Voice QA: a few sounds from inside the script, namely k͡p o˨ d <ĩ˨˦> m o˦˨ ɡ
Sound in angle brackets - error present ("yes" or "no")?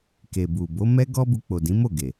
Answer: no